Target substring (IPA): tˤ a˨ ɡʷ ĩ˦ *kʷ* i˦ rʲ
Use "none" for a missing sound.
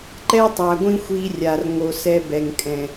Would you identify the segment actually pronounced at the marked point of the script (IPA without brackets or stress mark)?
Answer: xʷ